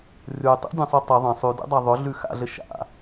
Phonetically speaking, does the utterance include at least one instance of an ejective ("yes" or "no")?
no